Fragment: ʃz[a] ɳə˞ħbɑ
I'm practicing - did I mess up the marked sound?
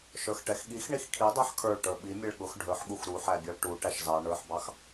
yes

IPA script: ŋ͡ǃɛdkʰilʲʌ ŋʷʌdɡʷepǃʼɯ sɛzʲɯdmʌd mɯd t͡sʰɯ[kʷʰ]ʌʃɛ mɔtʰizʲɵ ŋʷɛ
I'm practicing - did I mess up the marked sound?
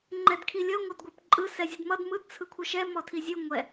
no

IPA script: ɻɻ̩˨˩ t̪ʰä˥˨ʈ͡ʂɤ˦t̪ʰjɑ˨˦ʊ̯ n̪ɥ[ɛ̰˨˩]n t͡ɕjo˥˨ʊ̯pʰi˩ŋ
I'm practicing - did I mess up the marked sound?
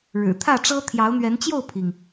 yes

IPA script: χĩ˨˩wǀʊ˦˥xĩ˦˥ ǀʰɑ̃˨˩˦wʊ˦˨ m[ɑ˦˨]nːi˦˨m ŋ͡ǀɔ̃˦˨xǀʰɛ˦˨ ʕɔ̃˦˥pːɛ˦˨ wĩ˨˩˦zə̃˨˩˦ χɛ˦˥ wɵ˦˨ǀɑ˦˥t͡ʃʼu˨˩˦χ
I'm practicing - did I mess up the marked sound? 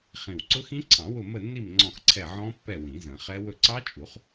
yes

